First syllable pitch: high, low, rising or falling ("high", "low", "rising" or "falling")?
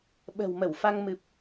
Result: low